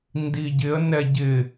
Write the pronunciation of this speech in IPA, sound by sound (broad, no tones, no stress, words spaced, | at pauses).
ndiɟɪə̯ nɛɟɪ